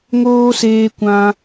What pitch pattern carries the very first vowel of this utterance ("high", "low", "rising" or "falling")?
high